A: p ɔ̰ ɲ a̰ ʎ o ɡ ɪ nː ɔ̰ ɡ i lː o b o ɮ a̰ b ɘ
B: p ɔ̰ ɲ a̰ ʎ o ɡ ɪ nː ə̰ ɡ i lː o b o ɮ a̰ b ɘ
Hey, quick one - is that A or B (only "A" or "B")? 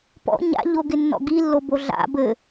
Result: A